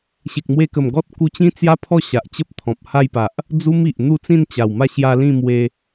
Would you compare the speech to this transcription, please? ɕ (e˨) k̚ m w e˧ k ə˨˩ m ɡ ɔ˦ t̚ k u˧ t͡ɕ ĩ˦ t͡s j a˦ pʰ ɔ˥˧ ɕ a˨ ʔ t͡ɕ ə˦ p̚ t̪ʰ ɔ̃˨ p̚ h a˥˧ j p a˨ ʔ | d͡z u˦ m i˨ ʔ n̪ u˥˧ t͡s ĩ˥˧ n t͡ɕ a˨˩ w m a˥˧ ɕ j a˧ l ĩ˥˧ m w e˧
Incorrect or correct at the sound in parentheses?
correct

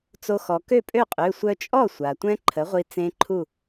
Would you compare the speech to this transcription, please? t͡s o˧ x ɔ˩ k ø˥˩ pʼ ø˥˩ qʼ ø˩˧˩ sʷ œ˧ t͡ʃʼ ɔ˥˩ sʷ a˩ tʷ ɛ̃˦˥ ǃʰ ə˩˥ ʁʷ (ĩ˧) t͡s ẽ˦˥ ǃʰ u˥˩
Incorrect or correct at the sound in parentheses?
incorrect: i˧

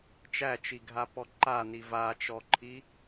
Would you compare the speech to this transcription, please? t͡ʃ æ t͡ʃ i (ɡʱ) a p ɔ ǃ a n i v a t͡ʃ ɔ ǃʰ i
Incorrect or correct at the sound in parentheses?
correct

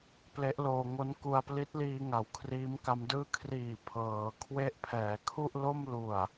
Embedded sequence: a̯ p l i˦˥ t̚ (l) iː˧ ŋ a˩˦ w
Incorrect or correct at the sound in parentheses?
correct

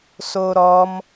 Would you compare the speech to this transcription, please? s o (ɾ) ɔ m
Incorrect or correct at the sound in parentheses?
correct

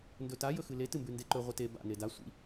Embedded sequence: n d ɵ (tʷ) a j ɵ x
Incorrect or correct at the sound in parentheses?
incorrect: t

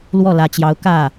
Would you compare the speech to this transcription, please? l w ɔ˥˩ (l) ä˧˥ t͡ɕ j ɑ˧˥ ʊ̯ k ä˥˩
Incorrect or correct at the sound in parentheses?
correct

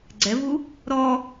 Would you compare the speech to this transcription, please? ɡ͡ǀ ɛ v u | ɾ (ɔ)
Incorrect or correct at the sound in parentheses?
correct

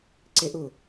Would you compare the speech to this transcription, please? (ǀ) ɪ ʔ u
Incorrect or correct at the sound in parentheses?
correct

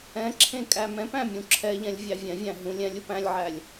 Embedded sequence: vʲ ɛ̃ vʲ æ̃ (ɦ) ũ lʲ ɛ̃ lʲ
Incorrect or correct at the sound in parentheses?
correct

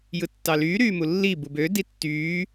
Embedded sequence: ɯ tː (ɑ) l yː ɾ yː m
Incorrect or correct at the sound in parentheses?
correct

